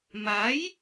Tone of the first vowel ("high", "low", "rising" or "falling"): rising